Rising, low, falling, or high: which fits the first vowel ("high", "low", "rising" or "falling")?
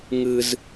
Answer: high